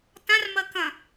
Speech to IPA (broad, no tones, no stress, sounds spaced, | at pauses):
t ã r m ɐ k ɐ̃